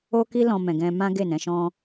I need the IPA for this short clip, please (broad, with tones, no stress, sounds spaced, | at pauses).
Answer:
o˦ k i˦ l ɔ̃˧ m ɛ̃˨ ɡ ɛ̃˧ m ã˦ ɡ e˦˨ n ɛ̃˨˦ ʃ ɔ̃˦